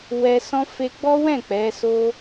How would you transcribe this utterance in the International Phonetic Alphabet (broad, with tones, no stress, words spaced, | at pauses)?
wɛ˧sɔ̃˦ fe˧ɡ͡bɔ˦wɛ̃˦˨ k͡pɛ˨˦so˦